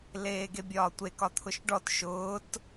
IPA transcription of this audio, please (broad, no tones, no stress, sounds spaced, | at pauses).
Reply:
l eː ɡ e bʲ ɒː tʷ e k ɒ t̪ʰ ʊ ʃ ɖ ɔ t ʃ ʊː t